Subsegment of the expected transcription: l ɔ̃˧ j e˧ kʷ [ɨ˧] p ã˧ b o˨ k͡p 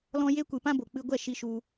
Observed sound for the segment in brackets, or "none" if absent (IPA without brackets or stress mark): ɨ˨